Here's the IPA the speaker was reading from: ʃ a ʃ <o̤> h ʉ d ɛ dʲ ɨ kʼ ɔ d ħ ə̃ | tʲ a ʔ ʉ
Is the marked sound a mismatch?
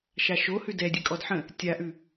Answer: yes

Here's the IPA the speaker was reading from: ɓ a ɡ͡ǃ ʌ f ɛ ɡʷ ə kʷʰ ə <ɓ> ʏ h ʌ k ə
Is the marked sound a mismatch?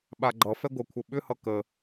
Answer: no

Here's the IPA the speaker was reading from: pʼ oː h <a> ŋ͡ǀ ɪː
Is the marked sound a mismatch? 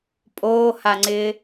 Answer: no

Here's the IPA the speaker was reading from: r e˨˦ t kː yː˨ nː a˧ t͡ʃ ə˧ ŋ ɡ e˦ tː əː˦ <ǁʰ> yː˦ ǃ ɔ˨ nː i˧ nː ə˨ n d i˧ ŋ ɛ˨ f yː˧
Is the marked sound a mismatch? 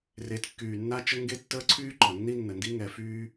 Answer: yes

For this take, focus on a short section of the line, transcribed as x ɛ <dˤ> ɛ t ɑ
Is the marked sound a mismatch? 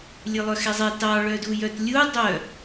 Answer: yes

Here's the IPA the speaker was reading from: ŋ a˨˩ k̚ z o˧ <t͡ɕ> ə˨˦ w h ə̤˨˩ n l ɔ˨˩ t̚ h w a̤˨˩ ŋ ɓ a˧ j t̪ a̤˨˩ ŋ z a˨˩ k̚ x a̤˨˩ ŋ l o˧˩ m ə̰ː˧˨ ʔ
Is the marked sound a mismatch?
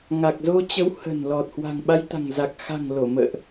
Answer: no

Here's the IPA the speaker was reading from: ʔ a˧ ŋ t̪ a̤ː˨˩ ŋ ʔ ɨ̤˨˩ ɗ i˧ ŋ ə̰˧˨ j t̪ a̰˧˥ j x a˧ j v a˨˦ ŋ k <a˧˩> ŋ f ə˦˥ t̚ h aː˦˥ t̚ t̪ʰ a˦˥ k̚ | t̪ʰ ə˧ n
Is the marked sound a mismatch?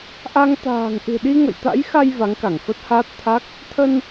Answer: no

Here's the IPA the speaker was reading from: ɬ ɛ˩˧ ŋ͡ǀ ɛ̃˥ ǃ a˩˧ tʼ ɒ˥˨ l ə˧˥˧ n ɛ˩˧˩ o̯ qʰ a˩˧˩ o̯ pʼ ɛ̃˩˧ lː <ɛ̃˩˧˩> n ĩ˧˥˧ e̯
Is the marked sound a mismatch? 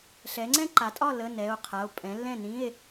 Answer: yes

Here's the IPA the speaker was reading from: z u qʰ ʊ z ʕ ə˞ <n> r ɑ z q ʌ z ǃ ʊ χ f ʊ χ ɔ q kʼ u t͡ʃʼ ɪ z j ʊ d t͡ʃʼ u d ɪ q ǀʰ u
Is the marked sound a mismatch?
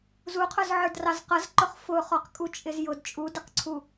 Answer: yes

